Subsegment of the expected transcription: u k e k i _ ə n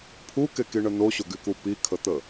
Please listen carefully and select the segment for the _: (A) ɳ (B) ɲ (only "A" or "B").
A